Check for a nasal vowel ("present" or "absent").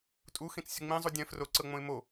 present